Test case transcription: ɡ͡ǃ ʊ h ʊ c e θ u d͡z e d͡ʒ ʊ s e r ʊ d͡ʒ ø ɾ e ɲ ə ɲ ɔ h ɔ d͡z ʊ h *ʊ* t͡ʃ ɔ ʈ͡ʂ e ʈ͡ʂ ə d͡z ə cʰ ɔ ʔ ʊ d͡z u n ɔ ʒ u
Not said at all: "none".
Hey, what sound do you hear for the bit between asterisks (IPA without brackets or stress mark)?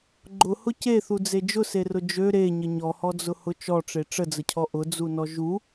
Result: ʊ